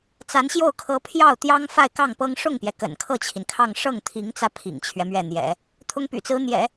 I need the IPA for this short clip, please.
t͡s a˧˥ n ɕ j o˥˩ ʊ̯ kʰ ɤ˧˥ pʰ j ɑ˥˩ ʊ̯ t̪ j ɑ˥ ŋ f a˥˧ ɪ̯ k ɑ˥˩ ŋ p ɤ˥ ŋ ʂ ʊ˥˩ ŋ p j ɛ˩ k ə̰˨˩ n kʰ ɤ˥˩ t͡ɕʰ i˩ n kʰ ɑ˥˧ ŋ ʂ ɤ˥˩ ŋ t̪ʰ i˧˥ ŋ t͡s ä˧ pʰ ḭ˨˩ ŋ t͡ɕʰ ɥ ɛ˦ m ɥ ɛ˥˩ n̪ j ɛ̰˨˩˦ | t̪ʰ ʊ˥ ŋ p y̰˨˩ t͡s ɹ̩˧˥ n̪ j ɛ̰˨˩˦

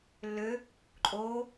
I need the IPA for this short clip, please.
lː ø | ǃʼ oː

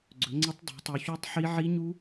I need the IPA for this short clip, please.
ɡ͡ǀ ɵ˨˦ ŋ͡ǀ ə˦˥ tˤ dˤ e̤˨˦ tˤ u˨˦ ç u˦˥ tˤ ħ i˦˥ ʕ i˦˥ ɲ u˦˥

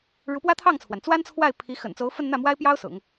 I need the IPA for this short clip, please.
ɻ u˧˥ p w ä˥ t̪ʰ ɑ˥˩ ŋ t͡sʰ w a˩ n t͡s w a˥ n t͡sʰ w a˥˩ ɪ̯ pʰ i˧˥ x ə̰˨˩ n t͡s o˧˥ ʊ̯ f ə˥˧ n n̪ ä˥˩ m w a˥ ɪ̯ p j ɑ˥ ʊ̯ s ʊ̰˨˩˦ ŋ

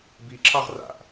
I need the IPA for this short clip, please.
b i ǁ ɑ ʁ r a̰ ʔ

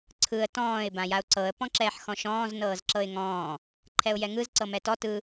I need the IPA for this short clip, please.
ǀʰ ɯ ə̯ t ɔ̃ː ɪ̯ b ã j a ʊ̯ ǀ ɤ ə̯ p ɔ̃ ǁ ɛː ħ x ɔ̃ ʃ ɔ̃ː z n ɤː z ǁ ɤ ɪ̯ ŋ ɔ̃ː | ǃʰ ɛ ʊ̯ j ɛ ŋ ɯ z ǀ ɤ m ɛ t ɔ t ɯ

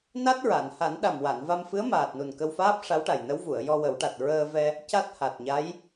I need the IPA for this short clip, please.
n a˦˥ t̚ ɹ a˨˩˨ n h a˨˩˦ n ɗ a˨˩ m w a˨˩˨ n v a˧ m f ɨ˧˥ ə̯ m aː˨˩ t̚ n u˨˩ n k ə˧ w f aː˦˥ p̚ ʂ a˧˥ w ʈ a˨˩ j n ə˧˥ w v u˨˩˨ ə̯ j ɔ˧ w ə˨˩˦ w ʈ a˨˩ t̚ ɹ əː˧ v ɛ˧ | c a˦˥ t̚ h a˨˩ t̚ ɲ a˧˥ j

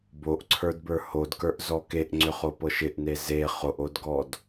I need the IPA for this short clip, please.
b o ʔ ǀʰ ə˞ d b ə˞ h o d k ə˞ ʔ z ɔ k e ʔ ŋ͡ǀ ʏ χ o p ɤ ʃ ɪ ʔ n e z e χ o ʔ o d ɡ ɔ d

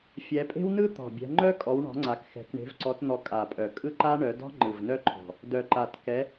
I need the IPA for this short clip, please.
fʲ ɛ˨˦ pʼ e̤˥ w n ɯ˥ t̪ ɔ̤˨˩ bʲ ɛ̤˨˦ ŋ͡ǃ œ˥ kʼ ɔ˨˦ w ɳ ɔ̤˨˦ ŋ͡ǀ a˨˦ k x ɛ̤˨˦ k ɳ e̤˨˦ v ǀ ɔ˨˦ t n̪ ɔ˨˦ kʼ a˨˩ pʼ œ˨˩ kʼ ɯ˥ ǃ a˥ ɳ œ˨˦ d ɔ̤˥ ŋ͡ǃ ɯ˨˩ v n œ˥ ǃʰ ɔ̤˨˩ | d œ˨˩ ǃ a˨˩ t k ɛ˨˦

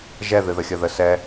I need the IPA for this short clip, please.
ʒ ɛ ð ɨ ð ə xʲ ə ð ə s ɛ

